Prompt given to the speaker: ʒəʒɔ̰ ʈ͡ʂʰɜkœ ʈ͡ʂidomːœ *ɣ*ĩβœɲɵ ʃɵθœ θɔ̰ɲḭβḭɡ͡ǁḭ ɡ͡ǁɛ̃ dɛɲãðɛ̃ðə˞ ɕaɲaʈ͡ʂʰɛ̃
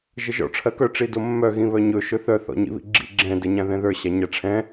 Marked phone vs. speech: correct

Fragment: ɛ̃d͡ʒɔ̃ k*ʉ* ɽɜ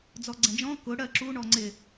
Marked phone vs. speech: incorrect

